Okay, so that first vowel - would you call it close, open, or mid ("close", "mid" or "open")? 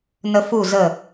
mid